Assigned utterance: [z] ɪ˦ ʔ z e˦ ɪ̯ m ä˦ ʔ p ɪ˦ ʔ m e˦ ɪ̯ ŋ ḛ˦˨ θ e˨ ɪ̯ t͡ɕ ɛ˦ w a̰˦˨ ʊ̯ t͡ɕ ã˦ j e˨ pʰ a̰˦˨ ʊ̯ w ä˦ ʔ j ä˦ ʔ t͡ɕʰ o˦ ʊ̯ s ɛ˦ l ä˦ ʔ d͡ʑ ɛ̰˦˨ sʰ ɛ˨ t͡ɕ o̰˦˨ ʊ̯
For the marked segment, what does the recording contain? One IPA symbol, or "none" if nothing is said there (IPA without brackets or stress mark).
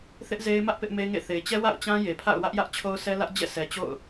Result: θ